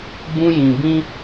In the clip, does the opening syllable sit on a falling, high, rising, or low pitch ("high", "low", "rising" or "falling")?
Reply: high